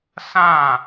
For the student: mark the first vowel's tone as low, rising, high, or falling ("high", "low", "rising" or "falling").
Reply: falling